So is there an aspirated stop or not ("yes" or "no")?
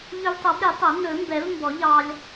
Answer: no